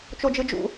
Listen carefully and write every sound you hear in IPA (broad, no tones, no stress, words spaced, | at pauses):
t͡ʃod͡ʒɯd͡ʒṵ